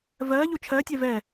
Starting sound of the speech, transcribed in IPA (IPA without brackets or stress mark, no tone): v